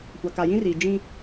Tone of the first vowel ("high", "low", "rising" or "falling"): low